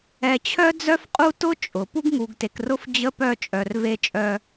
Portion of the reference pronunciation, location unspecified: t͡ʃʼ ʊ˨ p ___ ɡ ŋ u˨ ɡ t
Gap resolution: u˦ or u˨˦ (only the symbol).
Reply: u˦